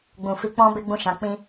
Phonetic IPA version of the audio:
ɡ͡b ũ˨ f i˧ k͡p ɔ̃˦ b e˦ ɡ͡b ũ˦˨ ʃ ã˨˦ k͡p ĩ˦

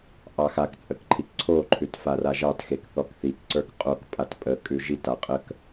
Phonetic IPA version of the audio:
ʔ ɑ x a k t͡sʼ ə k ǃʰ i k ǀʰ o ǃʰ ʉ t f a r a ʒ ɑ t x e k θ ɔ k θ i k ǀ ə˞ k qʼ o k pʼ a t pʼ ə kʼ ʉ ʒ i t a qʼ ə k

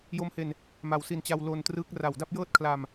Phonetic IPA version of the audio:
j o˦˥ m h e˧ n | m a˨˩ w s i˧ n t͡ɕ a˧ w l o˧ n t r ɯː˦˥ k̚ r a˨˩ w d a˥˩ p̚ j ɤː˥˩ t̚ kʰ l a˧ m

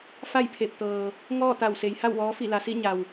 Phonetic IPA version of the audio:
f a˥˨ j pʰ e˧˩ p̚ t̪ ɤː˩ | ŋ ɔː˥˨ t̪ a˧˩ w s e˩˧ j h a˥˨ w ʋ ɔː˧˥ f i˧˩ l a˩ s i˥˨ ɲ a˩ w

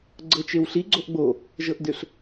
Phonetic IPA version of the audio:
ɡ͡ǀ ɤ t͡ʃ e w ɬ i ɡ͡ǀ o ʔ ɡ͡b o | ʒ ɤ ʔ d ʏ ɬ

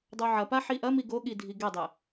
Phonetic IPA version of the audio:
dˤ o ʕ ɐ p a ħ i ʔ ɐ m i ɡ o ɠ i dʱ i ɡ ɛ dˤ ɛ

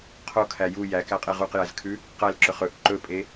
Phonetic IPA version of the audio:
qʰ o kʰ æ j u j æ k æ qʼ e ʁ u q j æ z kʰ ʉ | q æ l ǁ ɵ χ ɵ ʔ ǃ ɵ pʼ e

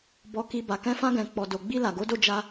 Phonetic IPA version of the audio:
b ɔ˧ k i˧ b a˨ k ɛ̃˧ f ã˧ ɡ ɛ̃˨ k͡p ɔ˨ d o˨ ɡ͡b i˧ l a˨ ɡ o˨˦ d o˦˨ d͡ʒ a˧

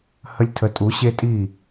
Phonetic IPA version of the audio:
h ə˧ lʲ tʰ ə˩˧ tʼ u˩˧ ɕ e˧ tʼ i˧˩

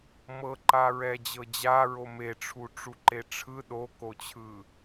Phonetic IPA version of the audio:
m ɤ ǃ a ɹ ɛ d͡ʑ ɤ d͡ʑ a ɹ o m e ʈ͡ʂʰ u ʈ͡ʂ u ǃ e ʈ͡ʂʰ ɯ ɗ o k o t͡ɕʰ ɯ

